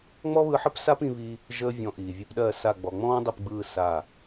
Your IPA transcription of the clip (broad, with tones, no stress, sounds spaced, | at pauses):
ŋ͡m ɔ˦ β ɯ˧ ħ ə˦ p s a˦ p ĩ˧ β i˧ | ʒ əː˦ vʲ ɔ̃˧ ʔ iː˨ vʲ ɯ˧ p ɗ ɜ˦˨ s a˦˨ ɡ͡b ɔ˨ ŋ͡m ɔ̃ː˦ dˤ i˦˨ p ɡ͡b ɯː˦˨ s a˦˨